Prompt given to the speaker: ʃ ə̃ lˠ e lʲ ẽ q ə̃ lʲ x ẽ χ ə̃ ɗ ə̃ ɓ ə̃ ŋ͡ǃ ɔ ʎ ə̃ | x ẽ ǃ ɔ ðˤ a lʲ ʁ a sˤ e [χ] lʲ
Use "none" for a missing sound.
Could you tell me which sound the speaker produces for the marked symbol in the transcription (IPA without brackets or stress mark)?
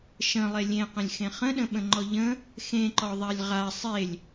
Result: none